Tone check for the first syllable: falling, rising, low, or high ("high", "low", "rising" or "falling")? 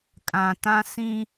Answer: low